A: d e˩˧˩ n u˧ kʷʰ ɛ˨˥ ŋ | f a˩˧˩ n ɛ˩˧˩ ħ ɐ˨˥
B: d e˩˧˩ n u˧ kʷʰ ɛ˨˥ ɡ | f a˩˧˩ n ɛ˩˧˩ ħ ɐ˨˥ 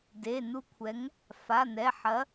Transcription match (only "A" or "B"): A